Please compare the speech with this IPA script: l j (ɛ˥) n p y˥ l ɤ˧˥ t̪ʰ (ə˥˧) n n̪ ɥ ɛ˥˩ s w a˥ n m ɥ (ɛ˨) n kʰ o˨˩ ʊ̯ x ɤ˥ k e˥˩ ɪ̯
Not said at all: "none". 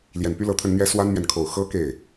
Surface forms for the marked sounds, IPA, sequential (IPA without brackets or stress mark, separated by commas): ɛ˨˩, ə˥˧, ɛ˨